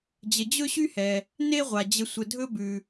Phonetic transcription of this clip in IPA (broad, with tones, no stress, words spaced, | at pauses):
d͡ʑə˨ d͡ʑɵ˥ɕy˥hɛ˩ | ne˦ʁʷa˩d͡ʑə˨ sʷə˨dʱɵ˦bʉ˩